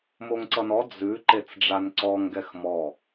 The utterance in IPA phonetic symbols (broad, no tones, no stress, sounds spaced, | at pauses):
m o ŋ ǀ ʌ n ɔ d͡z ʉ ǃ e t͡s ɖ͡ʐ a n ǀ ɔ ŋ ɡ ɛ x m ɔ